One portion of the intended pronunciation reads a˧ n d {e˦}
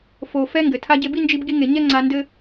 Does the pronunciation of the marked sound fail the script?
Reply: yes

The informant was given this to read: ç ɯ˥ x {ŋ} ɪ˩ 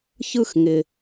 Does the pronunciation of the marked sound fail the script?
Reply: no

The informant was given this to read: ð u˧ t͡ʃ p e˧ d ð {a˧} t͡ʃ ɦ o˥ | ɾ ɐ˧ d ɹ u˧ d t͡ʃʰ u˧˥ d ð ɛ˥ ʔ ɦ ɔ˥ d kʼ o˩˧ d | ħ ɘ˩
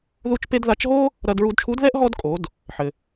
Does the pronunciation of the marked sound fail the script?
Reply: yes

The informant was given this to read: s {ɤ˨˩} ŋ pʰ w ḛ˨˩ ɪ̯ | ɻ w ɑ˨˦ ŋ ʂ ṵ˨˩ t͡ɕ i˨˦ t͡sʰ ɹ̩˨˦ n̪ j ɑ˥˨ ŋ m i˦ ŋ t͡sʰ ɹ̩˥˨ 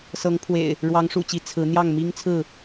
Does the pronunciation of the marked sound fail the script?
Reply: yes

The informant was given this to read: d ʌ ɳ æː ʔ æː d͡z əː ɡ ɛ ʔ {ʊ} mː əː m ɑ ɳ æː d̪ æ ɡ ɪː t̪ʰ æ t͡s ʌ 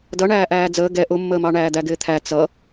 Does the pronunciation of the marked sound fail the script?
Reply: no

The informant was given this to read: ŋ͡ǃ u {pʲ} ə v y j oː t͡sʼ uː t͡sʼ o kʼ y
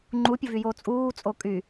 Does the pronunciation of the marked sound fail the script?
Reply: no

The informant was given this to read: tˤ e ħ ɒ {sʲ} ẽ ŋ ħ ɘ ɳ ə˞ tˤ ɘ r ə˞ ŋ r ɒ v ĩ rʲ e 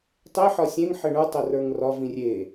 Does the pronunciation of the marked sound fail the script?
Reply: no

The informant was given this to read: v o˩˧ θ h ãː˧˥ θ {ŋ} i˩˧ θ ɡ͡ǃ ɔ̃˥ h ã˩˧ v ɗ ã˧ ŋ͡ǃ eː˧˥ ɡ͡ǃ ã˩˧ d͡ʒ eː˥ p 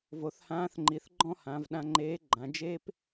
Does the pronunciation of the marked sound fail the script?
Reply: yes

